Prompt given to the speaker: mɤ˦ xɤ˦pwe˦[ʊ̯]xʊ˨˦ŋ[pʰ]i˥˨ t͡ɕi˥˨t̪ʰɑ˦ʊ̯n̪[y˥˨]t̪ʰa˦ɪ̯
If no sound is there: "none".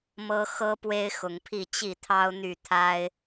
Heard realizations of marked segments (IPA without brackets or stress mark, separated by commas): ɪ̯, pʰ, y˥˨